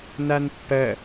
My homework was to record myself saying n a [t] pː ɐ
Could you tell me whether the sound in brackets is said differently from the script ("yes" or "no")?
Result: yes